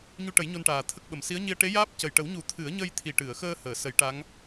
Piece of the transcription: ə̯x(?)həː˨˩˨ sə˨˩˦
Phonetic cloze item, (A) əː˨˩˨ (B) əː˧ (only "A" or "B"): B